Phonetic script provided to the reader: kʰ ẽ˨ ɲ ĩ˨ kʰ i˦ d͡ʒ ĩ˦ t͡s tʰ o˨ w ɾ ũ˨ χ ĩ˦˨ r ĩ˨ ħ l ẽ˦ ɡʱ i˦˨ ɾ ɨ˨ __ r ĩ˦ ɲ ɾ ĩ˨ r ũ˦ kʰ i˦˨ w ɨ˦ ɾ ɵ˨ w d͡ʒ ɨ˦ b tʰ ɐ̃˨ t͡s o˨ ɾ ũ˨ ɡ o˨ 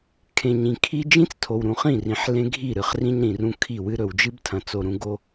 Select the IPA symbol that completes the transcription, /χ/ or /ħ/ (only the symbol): χ